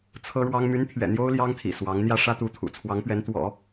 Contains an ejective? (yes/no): no